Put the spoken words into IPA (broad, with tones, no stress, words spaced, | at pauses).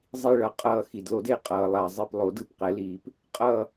zˤi˧˩ɭʌ˨˩˦ qʼʌː˧˩ xi˩dlo˨˩˦de˧˩ qʼʌː˩lˠa˩zˤi˧˩plˠo˨˩˦d ɯ˧˩pqɛ˨˩˦liː˨˩˦p | qʼʌː˧˩